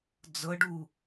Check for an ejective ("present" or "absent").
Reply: absent